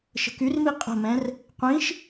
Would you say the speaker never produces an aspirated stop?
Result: yes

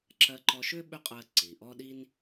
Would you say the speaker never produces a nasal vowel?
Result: yes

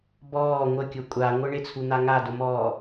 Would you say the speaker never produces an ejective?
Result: no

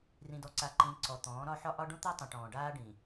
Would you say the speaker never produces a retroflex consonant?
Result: no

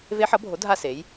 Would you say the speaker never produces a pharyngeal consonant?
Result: no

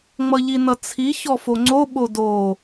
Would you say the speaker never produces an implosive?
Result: no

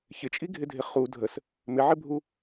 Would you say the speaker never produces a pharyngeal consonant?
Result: no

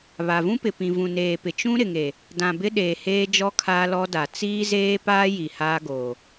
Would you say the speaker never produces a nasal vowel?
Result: no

